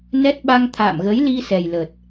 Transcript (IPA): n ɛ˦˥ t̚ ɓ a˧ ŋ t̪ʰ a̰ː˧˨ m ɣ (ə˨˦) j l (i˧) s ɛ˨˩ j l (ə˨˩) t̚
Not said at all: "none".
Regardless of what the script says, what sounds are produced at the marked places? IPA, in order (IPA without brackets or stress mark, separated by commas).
ə˨˦, i˧, ə˨˩